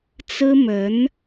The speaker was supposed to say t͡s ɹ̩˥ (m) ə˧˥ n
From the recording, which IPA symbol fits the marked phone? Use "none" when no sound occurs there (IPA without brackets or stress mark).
m